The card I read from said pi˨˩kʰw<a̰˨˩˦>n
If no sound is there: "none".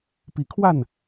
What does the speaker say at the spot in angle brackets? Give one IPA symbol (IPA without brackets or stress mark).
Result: a˥˩